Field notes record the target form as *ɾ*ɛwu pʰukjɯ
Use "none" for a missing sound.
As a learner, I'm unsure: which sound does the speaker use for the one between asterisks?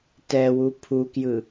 t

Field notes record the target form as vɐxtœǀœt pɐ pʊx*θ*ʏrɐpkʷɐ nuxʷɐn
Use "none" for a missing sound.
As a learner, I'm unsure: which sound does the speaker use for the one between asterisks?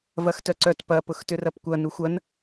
t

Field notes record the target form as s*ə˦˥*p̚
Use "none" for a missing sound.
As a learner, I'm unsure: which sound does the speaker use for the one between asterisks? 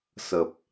ə˨˩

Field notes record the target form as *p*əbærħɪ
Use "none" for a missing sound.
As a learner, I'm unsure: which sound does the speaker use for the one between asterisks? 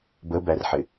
b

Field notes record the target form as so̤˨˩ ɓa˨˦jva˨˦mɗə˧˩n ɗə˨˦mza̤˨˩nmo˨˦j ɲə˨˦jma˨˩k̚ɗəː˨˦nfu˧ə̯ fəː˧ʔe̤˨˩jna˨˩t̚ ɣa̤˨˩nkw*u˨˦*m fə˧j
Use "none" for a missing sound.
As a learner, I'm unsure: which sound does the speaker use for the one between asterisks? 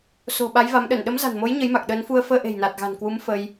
u˨˦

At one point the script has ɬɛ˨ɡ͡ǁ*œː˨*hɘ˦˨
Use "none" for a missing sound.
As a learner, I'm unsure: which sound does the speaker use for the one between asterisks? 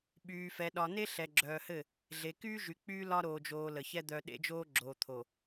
œː˨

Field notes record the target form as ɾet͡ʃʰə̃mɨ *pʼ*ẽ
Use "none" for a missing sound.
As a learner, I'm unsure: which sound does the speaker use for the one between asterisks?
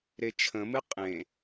qʼ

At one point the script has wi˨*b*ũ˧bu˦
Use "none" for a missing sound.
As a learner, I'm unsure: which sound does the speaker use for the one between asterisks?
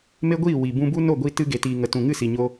b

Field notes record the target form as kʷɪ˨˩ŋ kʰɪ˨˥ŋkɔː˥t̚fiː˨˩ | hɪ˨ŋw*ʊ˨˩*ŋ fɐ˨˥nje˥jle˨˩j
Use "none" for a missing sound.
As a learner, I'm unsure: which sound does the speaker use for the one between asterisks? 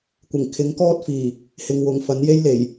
ʊ˨˩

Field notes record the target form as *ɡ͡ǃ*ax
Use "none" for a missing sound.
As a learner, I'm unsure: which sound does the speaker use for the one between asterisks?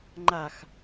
ŋ͡ǃ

